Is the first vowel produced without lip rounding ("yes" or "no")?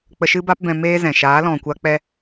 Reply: yes